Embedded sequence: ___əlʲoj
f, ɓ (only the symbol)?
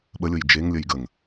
ɓ